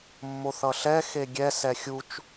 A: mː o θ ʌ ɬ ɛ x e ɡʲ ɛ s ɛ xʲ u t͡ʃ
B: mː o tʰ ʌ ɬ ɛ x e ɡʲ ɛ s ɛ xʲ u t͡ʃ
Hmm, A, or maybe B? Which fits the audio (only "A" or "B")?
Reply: A